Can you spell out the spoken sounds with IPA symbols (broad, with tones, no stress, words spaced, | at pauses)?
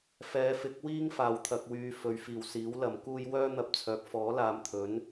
fɛː˨˧fɪ˨˥k̚wiː˥ŋ faː˧wt̪ʰɐ˧k̚wyː˧ fɵ˨˧ɥfiː˨˩wsiː˨˥w lɐ˨mkuː˥j wœː˥n̪ɐ˧p̚t͡sʰœː˨˥k̚ fɔː˨˥laː˨˧mt̪ʰɵ˨˥n